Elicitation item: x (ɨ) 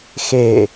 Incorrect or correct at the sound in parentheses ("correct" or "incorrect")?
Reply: incorrect